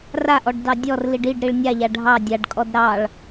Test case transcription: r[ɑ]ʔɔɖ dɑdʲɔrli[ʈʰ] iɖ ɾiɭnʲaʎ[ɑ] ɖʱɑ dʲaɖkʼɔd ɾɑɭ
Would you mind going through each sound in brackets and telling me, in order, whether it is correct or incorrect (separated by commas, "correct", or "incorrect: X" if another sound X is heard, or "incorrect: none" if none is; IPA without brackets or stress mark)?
incorrect: a, incorrect: ɖ, incorrect: a